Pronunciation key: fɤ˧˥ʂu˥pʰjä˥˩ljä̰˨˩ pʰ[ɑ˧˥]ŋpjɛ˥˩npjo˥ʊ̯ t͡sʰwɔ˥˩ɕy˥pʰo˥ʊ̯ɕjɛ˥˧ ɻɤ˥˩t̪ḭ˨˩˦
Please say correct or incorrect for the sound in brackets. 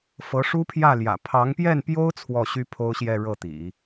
correct